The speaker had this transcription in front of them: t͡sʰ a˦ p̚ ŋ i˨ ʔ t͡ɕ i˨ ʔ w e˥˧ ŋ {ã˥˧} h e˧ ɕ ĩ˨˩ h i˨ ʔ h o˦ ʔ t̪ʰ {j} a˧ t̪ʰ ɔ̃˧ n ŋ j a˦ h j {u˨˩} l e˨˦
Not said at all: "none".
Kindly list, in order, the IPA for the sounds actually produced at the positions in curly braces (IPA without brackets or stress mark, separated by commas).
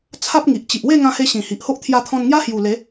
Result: ã˧, j, u˨˩